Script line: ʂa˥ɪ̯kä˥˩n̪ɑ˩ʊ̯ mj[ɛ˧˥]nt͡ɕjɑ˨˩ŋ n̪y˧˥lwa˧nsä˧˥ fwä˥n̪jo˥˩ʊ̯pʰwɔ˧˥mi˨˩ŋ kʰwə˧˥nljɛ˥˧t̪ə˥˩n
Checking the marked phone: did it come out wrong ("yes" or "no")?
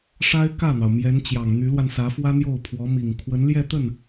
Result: no